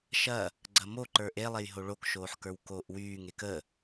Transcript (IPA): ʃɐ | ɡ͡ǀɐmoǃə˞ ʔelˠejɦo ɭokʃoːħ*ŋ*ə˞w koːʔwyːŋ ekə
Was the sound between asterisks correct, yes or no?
no